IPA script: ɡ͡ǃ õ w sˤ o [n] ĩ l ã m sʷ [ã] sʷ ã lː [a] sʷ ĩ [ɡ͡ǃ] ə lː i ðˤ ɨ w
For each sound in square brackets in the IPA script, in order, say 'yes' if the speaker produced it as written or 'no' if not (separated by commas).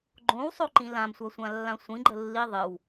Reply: no, no, no, yes